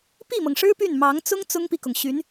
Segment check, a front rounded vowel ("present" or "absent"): present